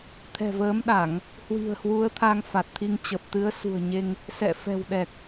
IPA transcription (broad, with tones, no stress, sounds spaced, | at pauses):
t̪ʰ ɛ̤˨˩ v əː˨˦ m ɗ a˧˩˨ ŋ | h w i̤˨˩ ə̯ h w u˨˦ ə̯ t̪ʰ a˧ ŋ f a˨˩ t̚ t̪ʰ i˧ ŋ t͡ɕ ə˨˩ p̚ t̪ ɨ˨˦ ə̯ s ṳ˨˩ ə̯ ɲ e˧ ŋ | s ɛ̰˧˨ f ɛ̤˨˩ w ɗ ɛ˨˩ k̚